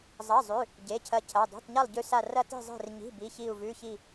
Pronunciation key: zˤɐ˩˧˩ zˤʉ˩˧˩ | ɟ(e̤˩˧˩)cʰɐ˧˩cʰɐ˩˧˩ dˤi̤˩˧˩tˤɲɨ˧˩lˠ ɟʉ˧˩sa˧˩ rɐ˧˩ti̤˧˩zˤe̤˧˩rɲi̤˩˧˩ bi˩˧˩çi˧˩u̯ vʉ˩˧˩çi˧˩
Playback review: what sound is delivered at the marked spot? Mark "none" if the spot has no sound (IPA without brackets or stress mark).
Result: e˩˧˩